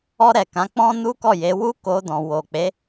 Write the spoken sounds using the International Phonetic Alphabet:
ɔ˧ɾɛ˨ kã˨˦ k͡pɔ̃˦ nu˦kɔ˦˨je˨˦ wu˦ko˧dɔ̃˨ wo˨k͡pe˨˦

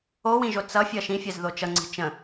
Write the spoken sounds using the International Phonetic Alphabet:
owĩʒo t͡sʌfʲʌ ʃĩfʲɜzðo t͡ʃʌŋ͡ǀi̤ t͡ʃə̃

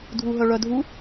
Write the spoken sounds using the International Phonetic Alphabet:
dʱuɦœɭœdʱu

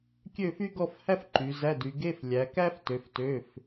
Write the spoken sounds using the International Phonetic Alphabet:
kʲø˥˧fy˥ɡɔ˥˧fhæ˥f ǃy˨˦ zæ˧˥˧dy˨˦ ɡe˧˥˧f lʲæ˨˦kæ˥ftø˨˦f tø˧˥˧f

